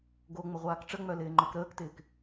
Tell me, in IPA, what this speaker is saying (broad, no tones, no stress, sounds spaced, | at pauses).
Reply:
ɡ o ŋ͡m ə ʁʷ aː k ʈ͡ʂ ə ŋ͡m œ l ɪː ŋ͡ǃ œ k ɾ əː k t ɪː k